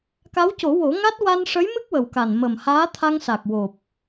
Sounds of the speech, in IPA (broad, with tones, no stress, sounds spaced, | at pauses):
k a˧˥ w c o˨˩˦ w o˨˩˦ ŋ a˦˥ t̚ w a˧ n ʂ ə˧˥ j m ɨ˦˥ k̚ w ə˨˩ w k a˨˩ n m ə˨˩ m h aː˧˥ t̪ʰ a˧ ŋ s a˨˩ k̚ w o˨˩ p̚